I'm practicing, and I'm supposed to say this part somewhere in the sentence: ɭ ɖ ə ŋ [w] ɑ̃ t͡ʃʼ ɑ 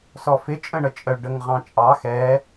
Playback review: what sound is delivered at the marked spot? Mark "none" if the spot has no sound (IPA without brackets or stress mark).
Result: ʁ